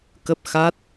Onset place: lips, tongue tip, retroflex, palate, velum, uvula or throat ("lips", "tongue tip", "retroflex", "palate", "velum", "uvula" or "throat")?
velum